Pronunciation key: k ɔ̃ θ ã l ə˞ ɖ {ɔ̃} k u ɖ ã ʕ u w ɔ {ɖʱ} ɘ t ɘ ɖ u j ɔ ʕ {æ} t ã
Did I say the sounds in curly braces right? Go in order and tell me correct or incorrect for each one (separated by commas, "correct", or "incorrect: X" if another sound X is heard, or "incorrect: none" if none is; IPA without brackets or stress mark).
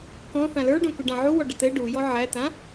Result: incorrect: õ, incorrect: ɖ, correct